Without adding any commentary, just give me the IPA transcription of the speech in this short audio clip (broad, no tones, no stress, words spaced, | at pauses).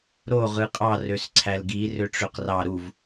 ɾo ʁɯqʼɑ røsǀʰælɡi røʈ͡ʂøqrɑ ɾuv